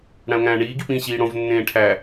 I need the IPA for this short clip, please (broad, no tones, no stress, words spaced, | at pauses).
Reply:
ɽæ̃o̯ŋæ̃ːɳiː ɡipĩ ɕiːɽõv nːẽːʈʰæ